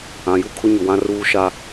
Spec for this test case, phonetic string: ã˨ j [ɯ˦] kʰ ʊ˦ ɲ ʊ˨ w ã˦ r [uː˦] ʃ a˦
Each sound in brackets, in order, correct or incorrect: incorrect: u˦, correct

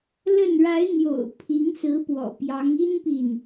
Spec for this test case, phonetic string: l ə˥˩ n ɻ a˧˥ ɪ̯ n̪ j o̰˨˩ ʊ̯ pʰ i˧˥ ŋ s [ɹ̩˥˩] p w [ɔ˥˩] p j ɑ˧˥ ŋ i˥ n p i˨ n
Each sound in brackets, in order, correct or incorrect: incorrect: ɹ̩˧˥, incorrect: ɔ̰˨˩

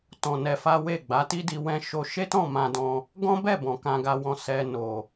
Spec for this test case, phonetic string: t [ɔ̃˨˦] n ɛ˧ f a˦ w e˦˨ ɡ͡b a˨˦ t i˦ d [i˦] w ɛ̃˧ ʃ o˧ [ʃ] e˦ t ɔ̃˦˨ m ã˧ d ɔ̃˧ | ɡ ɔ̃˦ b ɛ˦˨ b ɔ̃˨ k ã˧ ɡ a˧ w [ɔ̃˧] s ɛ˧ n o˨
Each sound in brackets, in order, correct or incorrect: incorrect: ɔ̃˧, incorrect: i˧, correct, correct

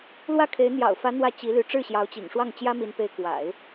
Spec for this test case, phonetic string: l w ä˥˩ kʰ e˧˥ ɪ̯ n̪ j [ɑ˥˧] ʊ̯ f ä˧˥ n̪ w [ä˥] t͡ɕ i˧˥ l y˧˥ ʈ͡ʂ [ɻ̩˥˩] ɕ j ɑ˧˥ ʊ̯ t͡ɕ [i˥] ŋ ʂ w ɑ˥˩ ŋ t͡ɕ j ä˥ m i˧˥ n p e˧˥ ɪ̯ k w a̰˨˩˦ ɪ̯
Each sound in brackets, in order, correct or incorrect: incorrect: ɑ̰˨˩, incorrect: ä˥˩, correct, incorrect: ḭ˨˩

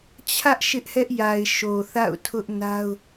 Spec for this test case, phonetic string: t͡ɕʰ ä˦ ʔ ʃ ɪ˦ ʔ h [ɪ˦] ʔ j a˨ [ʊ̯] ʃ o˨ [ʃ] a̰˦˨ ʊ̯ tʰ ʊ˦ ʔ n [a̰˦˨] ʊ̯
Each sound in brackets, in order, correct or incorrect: incorrect: ɛ˦, incorrect: ɪ̯, incorrect: θ, incorrect: a˦

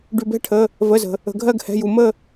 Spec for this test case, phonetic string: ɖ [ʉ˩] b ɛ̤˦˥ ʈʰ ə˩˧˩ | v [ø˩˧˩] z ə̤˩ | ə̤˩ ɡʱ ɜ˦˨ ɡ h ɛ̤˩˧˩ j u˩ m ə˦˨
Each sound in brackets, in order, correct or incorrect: correct, incorrect: ə˩˧˩

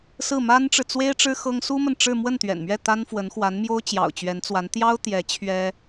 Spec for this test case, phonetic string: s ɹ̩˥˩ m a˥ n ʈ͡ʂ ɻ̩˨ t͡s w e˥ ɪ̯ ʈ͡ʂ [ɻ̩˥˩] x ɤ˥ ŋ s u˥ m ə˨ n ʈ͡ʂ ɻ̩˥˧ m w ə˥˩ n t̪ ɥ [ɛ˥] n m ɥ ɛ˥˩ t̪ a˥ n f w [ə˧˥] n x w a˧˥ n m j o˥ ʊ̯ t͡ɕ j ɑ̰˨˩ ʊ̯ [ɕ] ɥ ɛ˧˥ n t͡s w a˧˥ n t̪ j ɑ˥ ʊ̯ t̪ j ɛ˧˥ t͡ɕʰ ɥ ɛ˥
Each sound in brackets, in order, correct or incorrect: incorrect: ɻ̩˥, incorrect: ɛ̰˨˩, correct, incorrect: t͡ɕ

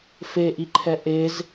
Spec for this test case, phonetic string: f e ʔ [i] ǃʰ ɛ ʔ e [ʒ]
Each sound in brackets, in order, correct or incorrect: correct, incorrect: z

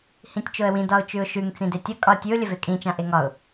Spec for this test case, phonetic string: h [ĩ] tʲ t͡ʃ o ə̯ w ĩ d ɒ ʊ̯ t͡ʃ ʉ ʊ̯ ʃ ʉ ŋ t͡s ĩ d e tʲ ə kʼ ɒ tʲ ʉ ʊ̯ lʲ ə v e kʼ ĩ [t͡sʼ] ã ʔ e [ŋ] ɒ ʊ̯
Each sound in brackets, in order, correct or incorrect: correct, incorrect: t͡ʃ, correct

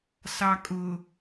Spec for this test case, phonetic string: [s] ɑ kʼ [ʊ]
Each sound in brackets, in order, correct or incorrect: correct, correct

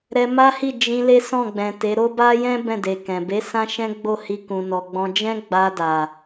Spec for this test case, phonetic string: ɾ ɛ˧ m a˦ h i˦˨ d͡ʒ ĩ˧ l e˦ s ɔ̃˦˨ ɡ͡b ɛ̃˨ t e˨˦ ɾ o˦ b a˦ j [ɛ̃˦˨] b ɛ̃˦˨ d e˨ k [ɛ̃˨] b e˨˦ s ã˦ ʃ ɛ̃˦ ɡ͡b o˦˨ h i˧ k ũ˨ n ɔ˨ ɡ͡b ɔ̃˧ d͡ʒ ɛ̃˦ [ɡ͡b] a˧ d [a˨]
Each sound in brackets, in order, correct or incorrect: incorrect: ɛ̃˦, correct, correct, correct

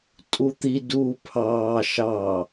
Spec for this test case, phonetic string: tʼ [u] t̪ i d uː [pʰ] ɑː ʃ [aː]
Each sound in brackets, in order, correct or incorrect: correct, correct, incorrect: ɑː

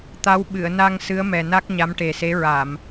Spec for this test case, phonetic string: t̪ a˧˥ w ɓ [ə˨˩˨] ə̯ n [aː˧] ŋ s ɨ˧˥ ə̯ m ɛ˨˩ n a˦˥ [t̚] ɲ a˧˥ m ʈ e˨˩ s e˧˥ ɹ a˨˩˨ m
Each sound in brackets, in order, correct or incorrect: incorrect: ɨ˨˩˨, incorrect: a˧, incorrect: k̚

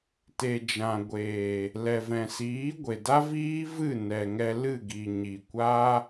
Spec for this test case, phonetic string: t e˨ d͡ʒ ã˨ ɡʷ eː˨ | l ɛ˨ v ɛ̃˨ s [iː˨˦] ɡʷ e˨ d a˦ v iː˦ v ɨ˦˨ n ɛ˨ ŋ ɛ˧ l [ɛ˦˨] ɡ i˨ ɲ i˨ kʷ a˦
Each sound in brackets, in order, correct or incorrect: correct, incorrect: ɨ˦˨

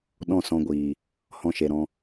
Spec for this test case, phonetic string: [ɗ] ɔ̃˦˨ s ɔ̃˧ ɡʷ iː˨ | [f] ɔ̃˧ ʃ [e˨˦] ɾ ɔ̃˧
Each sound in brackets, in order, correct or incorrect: correct, incorrect: h, incorrect: e˨

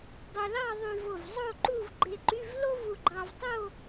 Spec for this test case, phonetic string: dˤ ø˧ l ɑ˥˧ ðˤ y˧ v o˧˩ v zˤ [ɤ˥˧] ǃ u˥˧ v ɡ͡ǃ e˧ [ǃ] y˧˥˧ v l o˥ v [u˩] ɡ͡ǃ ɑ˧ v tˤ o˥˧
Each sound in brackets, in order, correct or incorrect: incorrect: o˥˧, correct, incorrect: u˧

